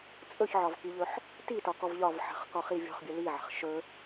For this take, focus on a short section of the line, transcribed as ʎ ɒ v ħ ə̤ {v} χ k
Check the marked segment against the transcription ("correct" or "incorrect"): incorrect